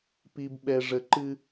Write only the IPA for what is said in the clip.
p i˨ b ɓ ɛ˨ ʐ ə˨ ǃ ɨ˦

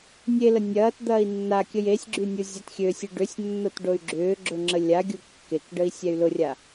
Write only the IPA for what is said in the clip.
nʲ e l ə nʲ ɐː t d̪ ɐː i̯ nː a kʲ ə j e sʲ ɡ͡ǁ y nʲ u zʲ a t xʲ ø sʲ e ɖ ʏ sʲ nː o t ɖ o y̯ ɡ͡ǁ ʏː ɡ͡ǁ ʊ ŋ͡ǁ ə lʲ a ɡʲ u kː e k ɖ ə i̯ sʲ ɛ y̯ l ʊ rʲ a

